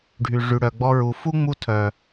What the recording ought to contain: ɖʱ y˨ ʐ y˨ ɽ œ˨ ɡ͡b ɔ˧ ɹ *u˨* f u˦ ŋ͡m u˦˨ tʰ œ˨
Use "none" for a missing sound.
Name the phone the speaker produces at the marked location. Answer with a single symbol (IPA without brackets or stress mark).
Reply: u˨